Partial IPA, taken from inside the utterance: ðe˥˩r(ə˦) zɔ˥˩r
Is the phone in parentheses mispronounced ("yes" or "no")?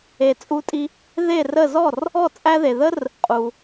yes